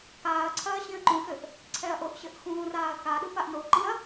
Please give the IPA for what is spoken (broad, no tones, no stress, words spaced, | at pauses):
kaːɐ̯ǀʰɐː ɕĩɐ̯ǃũxɘʔ | ǀʰɛɐ̯ʔoʔɕɘʔ xũːraːɐ̯kaɗu paʔnoǃĩɐ̯